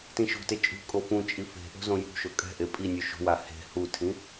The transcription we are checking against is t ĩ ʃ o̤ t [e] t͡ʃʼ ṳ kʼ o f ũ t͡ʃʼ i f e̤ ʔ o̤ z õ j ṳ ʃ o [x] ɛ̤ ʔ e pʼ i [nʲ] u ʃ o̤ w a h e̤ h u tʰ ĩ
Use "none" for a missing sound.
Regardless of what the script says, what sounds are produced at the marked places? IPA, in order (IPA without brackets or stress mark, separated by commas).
e, kʼ, nʲ